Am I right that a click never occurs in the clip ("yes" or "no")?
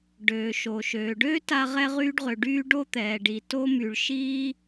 yes